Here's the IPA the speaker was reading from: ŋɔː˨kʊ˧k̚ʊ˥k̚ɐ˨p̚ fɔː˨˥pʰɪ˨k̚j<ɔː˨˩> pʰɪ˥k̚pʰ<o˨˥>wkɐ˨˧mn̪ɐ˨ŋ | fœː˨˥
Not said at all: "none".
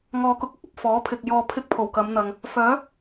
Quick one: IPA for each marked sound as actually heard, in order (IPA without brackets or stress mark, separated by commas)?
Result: ɔː˧, o˨˩